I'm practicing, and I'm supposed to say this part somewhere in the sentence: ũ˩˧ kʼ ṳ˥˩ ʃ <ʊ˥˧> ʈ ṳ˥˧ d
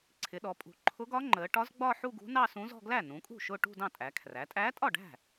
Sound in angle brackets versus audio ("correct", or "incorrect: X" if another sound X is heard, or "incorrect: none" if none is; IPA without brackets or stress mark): correct